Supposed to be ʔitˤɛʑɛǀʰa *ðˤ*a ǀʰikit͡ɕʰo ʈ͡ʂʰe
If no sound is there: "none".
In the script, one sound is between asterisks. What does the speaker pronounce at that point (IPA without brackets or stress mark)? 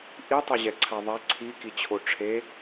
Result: ðˤ